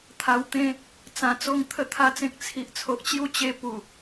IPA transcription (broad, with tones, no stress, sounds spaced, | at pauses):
t̪ʰ a˧ w t̪ ẽ˦ | t͡s ã˧ t͡s o˥˧ ŋ t̪ʰ ə˥˧ t̪ʰ a˦ t͡s ẽ˦ k̚ t͡sʰ i˨ ʔ t͡sʰ o˨ ʔ t͡ɕ j u˥˧ t͡ɕ e˦ p u˨˩